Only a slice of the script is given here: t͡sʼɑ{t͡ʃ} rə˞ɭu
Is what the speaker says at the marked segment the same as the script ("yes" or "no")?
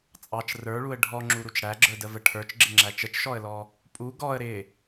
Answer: yes